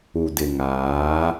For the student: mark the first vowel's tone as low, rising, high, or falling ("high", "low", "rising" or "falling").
low